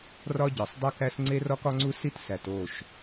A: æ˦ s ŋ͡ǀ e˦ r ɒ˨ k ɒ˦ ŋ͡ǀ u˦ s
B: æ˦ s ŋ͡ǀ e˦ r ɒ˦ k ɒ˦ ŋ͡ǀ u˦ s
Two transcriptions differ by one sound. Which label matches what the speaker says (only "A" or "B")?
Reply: B